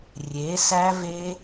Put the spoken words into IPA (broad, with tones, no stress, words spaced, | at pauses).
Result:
rʲe˩˥sæ˦˥ve˦˥